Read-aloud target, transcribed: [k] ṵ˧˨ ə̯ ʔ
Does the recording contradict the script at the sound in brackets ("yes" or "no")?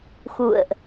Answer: yes